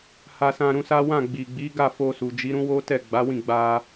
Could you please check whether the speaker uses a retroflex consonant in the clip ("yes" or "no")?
no